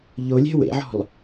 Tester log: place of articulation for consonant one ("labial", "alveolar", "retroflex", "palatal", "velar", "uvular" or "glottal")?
palatal